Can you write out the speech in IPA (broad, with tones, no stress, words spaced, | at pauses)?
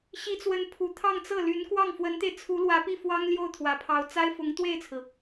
ɕi˧˥t͡swə˧˥n pʰu˨˩t̪ʰɑ˥˧ŋt͡sɤ˥˩ ly˧˥n kwɑ˥˩ŋfwə˧˥nt̪e˧ɪ̯ t͡sʰu˧˥lwä˧˥pi˥˩ fwɑ˥ŋljo˥˩ʊ̯t̪ʰwä˨˩pʰɑ˧˥ʊ̯ t͡sa˥ɪ̯fʊ˧˥ŋ t̪we˥˩ɪ̯t͡sʰɹ̩˩